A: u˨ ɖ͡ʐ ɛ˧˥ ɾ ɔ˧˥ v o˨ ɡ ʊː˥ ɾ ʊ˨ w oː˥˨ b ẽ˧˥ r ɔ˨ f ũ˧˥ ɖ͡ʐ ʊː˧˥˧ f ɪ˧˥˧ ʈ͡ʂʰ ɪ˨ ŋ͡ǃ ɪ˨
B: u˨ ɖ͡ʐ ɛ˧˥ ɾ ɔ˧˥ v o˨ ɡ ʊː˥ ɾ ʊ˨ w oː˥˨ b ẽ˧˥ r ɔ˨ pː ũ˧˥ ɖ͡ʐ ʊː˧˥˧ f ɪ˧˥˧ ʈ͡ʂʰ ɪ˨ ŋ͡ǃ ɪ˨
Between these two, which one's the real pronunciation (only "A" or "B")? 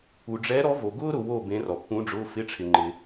B